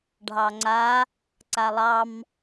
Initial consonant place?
retroflex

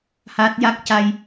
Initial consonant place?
glottal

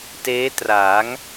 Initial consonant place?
alveolar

